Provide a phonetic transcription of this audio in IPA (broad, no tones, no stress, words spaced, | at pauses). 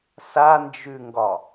sand͡ʒʉŋɡɒ